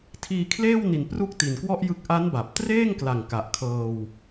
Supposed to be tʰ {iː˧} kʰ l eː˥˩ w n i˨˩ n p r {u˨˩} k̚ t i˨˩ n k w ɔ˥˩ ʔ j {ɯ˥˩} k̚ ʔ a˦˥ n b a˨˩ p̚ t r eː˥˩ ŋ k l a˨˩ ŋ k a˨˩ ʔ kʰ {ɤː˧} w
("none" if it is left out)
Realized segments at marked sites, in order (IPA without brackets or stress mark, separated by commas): iː˧, u˥˩, ɯ˦˥, ɤː˧